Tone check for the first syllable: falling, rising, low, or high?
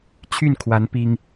falling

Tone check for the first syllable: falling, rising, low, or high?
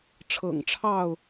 low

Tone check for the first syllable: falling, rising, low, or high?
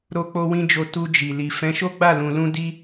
high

